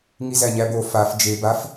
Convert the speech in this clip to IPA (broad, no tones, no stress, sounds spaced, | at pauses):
ŋ i z æ ɲ æ b o f a f d͡ʒ e b a f